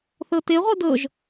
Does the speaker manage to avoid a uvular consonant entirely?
no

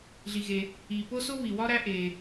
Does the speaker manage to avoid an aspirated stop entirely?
yes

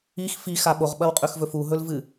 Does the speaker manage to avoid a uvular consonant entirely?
no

